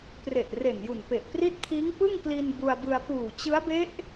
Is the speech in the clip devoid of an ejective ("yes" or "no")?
yes